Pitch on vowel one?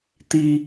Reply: low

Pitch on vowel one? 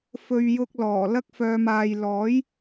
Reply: low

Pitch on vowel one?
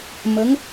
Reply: rising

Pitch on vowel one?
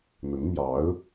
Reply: rising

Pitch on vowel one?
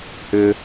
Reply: high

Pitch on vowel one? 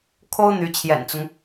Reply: high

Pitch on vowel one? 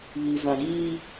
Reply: low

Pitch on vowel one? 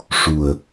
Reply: low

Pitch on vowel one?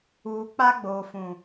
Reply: low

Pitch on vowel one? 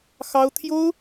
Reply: high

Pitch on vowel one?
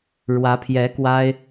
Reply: rising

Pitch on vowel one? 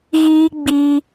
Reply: high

